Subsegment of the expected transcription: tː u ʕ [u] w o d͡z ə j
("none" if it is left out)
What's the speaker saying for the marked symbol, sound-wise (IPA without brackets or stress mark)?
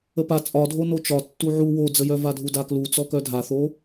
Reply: u